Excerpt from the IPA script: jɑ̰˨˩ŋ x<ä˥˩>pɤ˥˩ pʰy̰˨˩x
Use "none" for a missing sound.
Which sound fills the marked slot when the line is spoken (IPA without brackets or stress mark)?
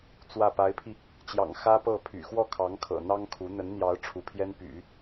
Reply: ä˥